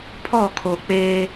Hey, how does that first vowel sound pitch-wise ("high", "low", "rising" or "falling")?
falling